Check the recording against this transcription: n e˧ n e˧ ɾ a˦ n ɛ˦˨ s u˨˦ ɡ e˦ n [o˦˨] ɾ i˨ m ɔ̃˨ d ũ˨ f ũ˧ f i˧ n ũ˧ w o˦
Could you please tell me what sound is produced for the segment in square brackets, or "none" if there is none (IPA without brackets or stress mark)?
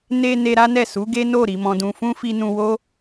o˦˨